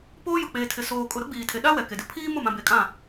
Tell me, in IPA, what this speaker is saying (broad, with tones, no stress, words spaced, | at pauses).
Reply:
poː˦ jʊ˨k͡peː˨tʰɪ˨ soː˨kʼʊ˨ ɾʊ˦ɡ͡biː˨tʰe˨ɗa˦ wɛ˨ke˨dɪ˦ pʰiː˦ mʊ˦˨mã˨be˨ kʼã˦˨